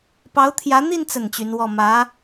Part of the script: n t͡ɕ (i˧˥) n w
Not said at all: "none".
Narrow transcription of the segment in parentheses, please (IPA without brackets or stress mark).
y˧˥